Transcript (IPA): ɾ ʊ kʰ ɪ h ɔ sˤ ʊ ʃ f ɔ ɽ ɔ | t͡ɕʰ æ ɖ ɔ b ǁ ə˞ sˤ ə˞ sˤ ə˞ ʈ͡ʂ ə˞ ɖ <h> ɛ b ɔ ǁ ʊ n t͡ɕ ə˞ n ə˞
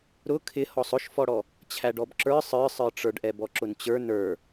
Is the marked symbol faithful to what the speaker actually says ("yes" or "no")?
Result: no